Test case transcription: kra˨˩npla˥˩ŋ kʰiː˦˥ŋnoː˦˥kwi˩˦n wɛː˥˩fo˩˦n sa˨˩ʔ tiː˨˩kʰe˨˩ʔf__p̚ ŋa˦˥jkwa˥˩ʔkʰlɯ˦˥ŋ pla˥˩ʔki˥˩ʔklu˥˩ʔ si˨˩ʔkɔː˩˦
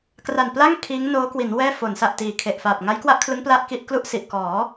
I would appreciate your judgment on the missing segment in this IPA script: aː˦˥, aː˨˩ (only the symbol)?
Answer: aː˨˩